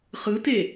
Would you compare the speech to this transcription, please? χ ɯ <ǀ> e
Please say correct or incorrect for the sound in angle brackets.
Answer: incorrect